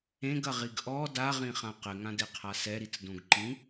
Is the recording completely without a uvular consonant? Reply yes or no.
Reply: no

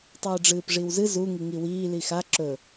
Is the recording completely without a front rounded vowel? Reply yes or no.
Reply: yes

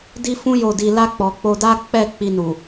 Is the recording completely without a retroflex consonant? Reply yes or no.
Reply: yes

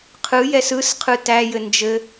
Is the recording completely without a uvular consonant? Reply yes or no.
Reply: no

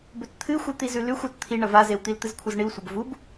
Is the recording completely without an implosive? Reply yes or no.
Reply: yes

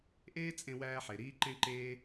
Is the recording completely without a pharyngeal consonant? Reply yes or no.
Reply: no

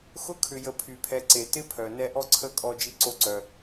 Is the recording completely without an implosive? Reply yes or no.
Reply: yes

